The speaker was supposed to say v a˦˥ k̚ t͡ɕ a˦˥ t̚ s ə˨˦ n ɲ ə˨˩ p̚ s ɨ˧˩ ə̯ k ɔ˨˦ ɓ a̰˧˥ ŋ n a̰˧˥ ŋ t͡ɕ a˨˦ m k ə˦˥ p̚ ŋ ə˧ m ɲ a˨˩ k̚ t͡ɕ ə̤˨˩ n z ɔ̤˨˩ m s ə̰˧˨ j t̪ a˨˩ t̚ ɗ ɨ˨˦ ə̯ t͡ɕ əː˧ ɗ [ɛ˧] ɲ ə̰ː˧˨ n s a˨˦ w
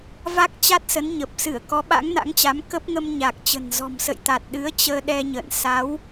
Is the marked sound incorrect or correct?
correct